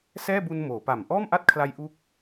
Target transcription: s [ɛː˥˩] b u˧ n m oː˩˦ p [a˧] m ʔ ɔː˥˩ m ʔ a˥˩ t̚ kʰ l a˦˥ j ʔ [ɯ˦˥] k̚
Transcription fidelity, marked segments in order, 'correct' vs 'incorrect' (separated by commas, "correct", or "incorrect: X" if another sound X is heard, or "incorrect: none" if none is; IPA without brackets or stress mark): correct, incorrect: a˨˩, incorrect: u˦˥